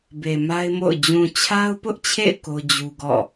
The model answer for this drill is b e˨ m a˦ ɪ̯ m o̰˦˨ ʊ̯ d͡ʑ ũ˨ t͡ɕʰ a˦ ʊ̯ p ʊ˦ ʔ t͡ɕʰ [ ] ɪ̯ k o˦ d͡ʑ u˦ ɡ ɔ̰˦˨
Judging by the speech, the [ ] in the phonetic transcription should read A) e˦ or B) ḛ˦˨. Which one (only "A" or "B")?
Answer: B